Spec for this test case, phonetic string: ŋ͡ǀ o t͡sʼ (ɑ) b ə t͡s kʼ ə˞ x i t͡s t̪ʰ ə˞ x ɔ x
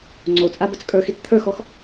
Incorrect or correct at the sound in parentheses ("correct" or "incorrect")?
incorrect